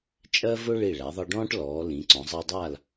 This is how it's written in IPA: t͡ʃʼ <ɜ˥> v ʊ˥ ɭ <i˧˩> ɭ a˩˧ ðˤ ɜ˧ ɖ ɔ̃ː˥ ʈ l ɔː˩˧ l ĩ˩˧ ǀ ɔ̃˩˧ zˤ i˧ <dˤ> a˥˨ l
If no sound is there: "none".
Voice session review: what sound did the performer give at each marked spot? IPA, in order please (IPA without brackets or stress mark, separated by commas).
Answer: ɜ˥, i˧˩, dˤ